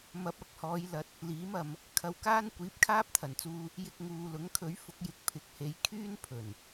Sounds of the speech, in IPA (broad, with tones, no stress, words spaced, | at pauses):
mɐ˨˥p̚ ɐ˨˥k̚ hɔː˨˧jlɐ˨˥t̚ | liː˨˥mɐ˨˧m | kʰɐ˧wkaː˥n kʷiː˨˥p̚kʰaː˥p̚t̪ʰɐ˨˩nt͡suː˧ | jɪ˧k̚ŋuː˨ lʊ˨˥ŋ kʰɵ˨˥ɥ fʊ˨˥k̚jɪ˨˥k̚ pʰɪ˨˥k̚he˨˥j kʰyː˥npʰɵ˨˩n